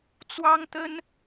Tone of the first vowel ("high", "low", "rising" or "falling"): high